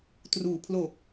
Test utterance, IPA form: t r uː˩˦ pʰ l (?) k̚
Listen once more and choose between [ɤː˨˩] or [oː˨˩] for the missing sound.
oː˨˩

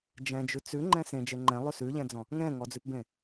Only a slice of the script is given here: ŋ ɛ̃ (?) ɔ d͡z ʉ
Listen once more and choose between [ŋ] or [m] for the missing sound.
ŋ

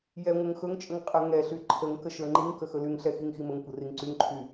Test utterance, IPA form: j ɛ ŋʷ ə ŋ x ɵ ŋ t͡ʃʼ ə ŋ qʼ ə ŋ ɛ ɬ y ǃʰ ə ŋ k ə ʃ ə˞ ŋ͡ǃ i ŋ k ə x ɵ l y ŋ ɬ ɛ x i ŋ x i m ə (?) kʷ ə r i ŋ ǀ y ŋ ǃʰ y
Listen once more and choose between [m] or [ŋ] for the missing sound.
ŋ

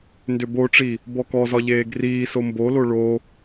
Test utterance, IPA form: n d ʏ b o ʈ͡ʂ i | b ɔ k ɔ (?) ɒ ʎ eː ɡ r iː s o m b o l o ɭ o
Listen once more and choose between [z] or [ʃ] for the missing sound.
z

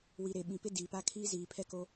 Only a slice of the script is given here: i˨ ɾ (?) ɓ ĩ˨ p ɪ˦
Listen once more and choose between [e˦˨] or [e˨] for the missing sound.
e˨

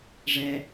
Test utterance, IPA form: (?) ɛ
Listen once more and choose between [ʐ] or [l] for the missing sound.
ʐ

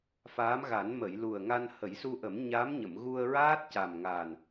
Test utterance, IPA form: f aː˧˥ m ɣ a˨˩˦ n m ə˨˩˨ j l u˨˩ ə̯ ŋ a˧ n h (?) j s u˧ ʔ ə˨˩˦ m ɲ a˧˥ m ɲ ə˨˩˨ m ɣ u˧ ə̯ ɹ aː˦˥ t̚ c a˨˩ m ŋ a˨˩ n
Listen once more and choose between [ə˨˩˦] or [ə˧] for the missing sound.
ə˨˩˦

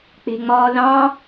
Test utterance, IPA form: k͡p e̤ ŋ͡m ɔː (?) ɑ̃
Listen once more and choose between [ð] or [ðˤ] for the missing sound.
ð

